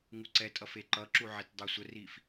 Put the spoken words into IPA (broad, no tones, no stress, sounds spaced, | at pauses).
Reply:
ŋ u ǀ ɛ tʼ ʌ f e ǃ ʌ ǁ u ʕ e t dˤ ɜ sʷ ə r i f